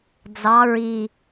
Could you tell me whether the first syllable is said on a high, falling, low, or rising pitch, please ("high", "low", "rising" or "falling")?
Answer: rising